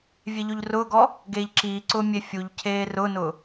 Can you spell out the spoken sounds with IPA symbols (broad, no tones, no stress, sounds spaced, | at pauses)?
vʲ e ʎ o ʎ r ʊː ɡ ɔ | ɡ eː ʎ ǁ iː ǀ ʊː mʲ e fʲ u ʎ cʰ eː r ʊ n ʊ